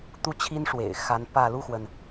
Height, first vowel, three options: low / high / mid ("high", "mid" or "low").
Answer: high